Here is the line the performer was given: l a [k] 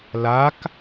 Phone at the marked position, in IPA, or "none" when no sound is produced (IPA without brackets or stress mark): k